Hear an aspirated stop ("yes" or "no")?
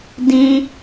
no